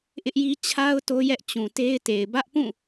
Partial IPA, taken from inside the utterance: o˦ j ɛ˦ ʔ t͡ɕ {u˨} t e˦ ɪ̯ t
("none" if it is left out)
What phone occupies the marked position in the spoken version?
ũ˨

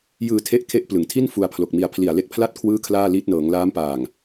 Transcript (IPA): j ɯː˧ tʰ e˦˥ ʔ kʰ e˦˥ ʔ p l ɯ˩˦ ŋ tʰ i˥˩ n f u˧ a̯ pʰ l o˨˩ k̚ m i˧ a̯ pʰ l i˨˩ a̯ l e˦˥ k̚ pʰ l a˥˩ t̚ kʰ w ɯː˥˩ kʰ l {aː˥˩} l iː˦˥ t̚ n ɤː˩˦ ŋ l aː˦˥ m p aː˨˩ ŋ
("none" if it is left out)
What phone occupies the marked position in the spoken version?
aː˥˩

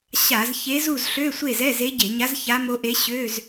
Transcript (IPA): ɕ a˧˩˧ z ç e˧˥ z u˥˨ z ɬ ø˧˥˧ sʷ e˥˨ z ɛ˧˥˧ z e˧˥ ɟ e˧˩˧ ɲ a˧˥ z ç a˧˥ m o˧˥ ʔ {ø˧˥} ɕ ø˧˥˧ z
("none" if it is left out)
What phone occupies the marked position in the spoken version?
e˧˥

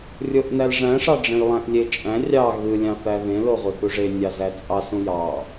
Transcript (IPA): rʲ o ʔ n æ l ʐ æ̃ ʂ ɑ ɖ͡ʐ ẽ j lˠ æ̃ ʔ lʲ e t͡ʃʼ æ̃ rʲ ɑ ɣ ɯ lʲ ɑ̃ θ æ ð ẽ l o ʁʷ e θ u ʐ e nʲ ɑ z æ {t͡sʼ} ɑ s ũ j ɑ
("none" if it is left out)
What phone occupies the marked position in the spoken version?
t͡sʼ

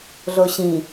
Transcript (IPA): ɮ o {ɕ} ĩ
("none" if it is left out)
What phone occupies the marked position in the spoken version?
ɕ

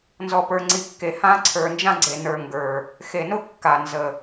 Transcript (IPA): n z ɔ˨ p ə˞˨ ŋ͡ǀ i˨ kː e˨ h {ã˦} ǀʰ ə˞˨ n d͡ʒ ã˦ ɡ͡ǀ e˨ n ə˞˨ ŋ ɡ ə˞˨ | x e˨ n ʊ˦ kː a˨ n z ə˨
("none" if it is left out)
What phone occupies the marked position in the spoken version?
ã˦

